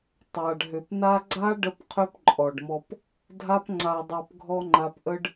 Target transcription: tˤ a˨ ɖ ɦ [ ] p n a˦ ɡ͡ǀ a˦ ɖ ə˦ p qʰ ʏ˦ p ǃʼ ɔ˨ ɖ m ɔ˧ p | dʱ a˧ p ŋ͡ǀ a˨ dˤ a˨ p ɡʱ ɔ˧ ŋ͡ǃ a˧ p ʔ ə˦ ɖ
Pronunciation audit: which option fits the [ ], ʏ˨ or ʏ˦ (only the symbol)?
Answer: ʏ˨